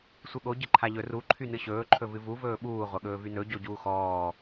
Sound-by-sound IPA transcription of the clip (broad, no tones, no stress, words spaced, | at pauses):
sʷɨɠo ɟɨǃʰaʎɵ ru ǃʰynɨɕɵː ǃʰɵvɨvu vɵːɓuː ʁʷɐɠɵːvynɵ ɟoɟuːxɔː